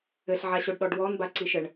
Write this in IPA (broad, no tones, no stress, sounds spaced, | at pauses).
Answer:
ɘ ɬ ʕ a ɕ o ɖ ɗ ɔ ɖ w ɔ n b a ǀ i ʃ ɘ ɳ